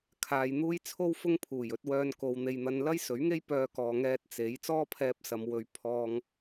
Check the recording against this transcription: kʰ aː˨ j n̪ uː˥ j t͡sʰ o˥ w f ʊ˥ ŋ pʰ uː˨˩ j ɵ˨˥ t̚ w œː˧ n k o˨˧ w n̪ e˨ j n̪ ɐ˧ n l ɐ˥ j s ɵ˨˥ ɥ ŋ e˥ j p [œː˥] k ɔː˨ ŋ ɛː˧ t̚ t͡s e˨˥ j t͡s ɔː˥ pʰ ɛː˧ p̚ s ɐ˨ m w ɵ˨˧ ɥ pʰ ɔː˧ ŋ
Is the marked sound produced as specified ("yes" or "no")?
no